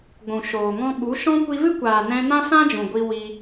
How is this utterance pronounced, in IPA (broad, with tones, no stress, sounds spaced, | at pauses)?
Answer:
ɡʷ ũ˨ ʃ oː˨ ŋ ɔ̃˦ ɓ u˨˦ ʃ ɔ̃˦ kʷ i˧ v ɨ˦ kʷ aː˨ n ɛ̃˧ n ã˦ s ã˦ d͡ʒ ũ˨ ɡʷ i˧ w i˧